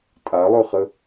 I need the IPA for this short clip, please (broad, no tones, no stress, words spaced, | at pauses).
tʼalˠøχə